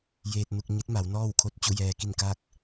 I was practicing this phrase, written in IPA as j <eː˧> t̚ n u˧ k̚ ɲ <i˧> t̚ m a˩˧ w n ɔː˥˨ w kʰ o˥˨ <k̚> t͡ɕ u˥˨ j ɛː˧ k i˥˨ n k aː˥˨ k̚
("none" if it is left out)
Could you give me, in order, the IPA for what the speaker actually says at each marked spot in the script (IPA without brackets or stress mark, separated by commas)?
eː˧, i˧˥, t̚